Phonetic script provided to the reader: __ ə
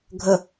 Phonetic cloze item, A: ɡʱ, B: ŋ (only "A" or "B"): A